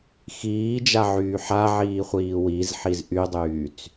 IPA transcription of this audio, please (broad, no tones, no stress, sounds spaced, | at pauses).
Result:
x iː d͡ʒ a ʕ yː ħ a ʕ iː χʷ iː w i z ħ i z ʔ y dˤ yː t͡s